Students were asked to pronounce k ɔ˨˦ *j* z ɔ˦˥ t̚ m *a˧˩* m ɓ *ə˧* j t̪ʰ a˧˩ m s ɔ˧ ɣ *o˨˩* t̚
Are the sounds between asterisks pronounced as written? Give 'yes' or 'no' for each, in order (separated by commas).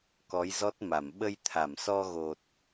yes, yes, yes, yes